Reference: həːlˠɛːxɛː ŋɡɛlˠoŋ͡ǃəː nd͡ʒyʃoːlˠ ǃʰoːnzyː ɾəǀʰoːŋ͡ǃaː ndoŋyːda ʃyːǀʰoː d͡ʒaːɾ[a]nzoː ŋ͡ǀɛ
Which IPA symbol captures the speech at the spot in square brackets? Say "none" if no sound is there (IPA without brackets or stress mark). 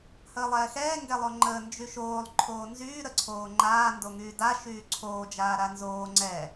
a